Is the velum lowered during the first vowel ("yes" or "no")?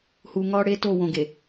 no